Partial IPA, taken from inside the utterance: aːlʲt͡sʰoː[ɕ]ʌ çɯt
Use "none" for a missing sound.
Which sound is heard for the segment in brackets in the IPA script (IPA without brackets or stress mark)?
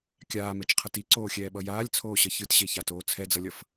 ɕ